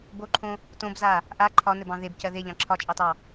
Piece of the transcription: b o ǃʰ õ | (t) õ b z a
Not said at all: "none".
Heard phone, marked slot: t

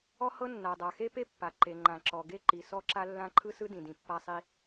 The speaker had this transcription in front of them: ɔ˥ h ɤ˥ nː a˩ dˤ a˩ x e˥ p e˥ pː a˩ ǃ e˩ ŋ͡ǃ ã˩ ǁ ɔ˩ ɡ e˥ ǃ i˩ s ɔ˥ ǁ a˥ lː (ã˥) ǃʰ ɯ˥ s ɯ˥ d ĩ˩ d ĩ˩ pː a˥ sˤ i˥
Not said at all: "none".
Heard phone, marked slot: ã˥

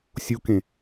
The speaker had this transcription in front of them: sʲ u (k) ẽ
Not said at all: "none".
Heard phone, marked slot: k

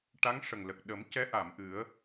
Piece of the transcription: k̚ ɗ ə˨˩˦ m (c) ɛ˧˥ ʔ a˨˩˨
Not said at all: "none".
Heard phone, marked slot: c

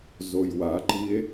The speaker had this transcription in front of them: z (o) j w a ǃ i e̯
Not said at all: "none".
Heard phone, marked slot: o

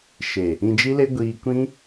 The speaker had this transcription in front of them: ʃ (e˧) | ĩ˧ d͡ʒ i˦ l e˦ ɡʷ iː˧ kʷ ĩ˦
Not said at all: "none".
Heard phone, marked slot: e˨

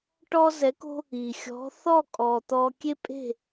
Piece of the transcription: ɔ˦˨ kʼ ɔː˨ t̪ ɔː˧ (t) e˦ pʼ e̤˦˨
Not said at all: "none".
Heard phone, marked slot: kʲ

